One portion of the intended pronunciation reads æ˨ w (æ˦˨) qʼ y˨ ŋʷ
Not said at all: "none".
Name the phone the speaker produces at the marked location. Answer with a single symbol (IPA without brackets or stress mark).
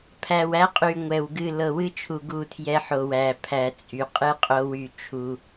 æ˦